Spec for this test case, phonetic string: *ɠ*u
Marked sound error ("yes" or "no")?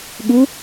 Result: no